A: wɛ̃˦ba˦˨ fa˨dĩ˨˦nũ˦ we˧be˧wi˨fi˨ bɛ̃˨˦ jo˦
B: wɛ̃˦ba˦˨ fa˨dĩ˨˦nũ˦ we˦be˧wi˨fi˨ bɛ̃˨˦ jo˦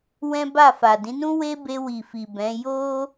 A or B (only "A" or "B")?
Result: B